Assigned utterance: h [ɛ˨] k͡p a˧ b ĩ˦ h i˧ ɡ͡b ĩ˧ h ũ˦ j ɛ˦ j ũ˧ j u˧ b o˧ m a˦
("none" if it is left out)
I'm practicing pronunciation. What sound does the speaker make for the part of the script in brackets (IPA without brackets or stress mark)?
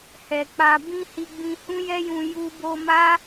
ɛ˨